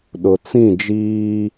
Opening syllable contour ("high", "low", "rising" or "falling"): low